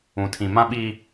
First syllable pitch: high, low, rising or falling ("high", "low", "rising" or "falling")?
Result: low